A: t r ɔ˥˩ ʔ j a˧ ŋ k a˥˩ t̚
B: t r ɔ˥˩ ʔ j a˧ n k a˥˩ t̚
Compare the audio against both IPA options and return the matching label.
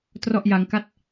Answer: A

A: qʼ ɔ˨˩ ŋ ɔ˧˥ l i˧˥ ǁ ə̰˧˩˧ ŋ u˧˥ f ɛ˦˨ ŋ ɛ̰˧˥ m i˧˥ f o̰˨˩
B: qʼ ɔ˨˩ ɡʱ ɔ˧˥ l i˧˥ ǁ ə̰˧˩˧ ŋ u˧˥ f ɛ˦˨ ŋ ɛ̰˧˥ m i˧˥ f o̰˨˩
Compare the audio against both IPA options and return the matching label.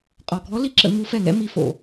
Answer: B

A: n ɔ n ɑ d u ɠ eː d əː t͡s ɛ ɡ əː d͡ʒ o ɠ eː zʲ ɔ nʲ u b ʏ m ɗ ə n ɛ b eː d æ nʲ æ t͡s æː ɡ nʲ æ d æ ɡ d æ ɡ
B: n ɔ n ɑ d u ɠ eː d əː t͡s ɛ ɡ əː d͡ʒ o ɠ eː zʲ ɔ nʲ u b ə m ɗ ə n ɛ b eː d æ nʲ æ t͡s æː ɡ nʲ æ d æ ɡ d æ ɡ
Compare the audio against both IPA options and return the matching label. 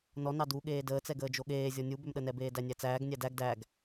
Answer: A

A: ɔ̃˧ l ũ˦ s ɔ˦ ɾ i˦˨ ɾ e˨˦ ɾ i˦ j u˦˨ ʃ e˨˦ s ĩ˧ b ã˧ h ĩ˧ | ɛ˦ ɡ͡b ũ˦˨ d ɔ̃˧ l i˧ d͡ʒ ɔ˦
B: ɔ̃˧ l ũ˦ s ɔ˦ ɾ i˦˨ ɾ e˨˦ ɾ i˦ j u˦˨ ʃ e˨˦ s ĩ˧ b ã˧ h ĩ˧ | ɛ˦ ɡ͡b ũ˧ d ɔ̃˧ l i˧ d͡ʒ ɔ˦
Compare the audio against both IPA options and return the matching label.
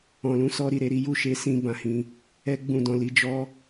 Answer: A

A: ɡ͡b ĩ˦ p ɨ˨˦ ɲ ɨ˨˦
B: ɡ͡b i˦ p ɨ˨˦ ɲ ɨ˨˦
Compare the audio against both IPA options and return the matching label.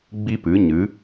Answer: B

